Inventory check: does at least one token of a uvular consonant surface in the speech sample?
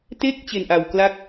no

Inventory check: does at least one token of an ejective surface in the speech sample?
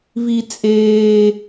yes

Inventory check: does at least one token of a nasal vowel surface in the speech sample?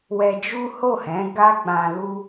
yes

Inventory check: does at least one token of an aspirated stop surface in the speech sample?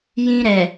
no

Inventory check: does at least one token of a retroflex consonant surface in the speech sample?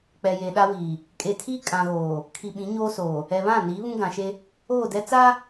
no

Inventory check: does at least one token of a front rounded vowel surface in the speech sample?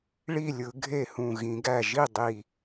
no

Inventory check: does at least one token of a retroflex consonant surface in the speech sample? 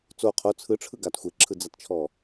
yes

